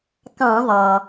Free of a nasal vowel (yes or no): no